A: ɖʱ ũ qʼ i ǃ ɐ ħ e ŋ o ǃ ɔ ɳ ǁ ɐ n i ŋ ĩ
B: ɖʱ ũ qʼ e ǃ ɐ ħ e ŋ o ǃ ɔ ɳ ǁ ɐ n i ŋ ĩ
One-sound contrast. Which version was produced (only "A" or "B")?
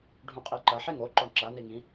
A